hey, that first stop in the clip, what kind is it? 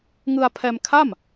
aspirated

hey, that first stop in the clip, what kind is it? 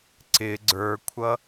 click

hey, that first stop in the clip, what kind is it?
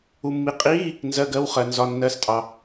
ejective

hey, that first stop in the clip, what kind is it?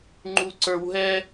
click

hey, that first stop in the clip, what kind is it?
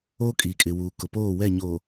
ejective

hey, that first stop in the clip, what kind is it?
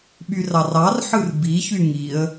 implosive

